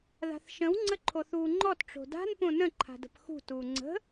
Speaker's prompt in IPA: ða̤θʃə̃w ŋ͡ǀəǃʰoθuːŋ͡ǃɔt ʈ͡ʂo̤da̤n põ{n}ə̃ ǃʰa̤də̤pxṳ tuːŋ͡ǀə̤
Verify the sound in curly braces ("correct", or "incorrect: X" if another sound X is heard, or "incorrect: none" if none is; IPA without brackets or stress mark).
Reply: correct